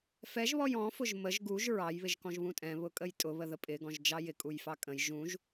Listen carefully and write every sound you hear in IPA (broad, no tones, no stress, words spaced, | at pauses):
fɛʒβɔj ɔ̃fʊʒ məʒ ɡuʒ ɹɑjβɪʒkɔ̃ʒ βũtʼɛ̃ βʊkʼəjtʼʊ βəðəpʼɪɡɔ̃ʒ d͡ʒɑjɪkʼujfɑ kʼə̃j ʒũʒ